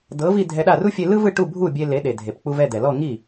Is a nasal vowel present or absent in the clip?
absent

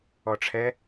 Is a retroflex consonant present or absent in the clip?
present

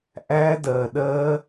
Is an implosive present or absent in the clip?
present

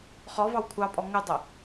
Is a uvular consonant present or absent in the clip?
present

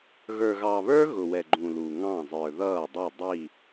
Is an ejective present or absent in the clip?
absent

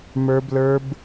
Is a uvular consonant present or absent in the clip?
absent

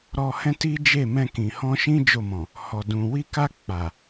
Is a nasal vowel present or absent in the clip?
present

